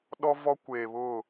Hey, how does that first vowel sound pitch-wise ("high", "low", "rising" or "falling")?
high